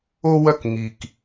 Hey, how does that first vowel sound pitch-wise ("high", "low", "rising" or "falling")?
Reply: high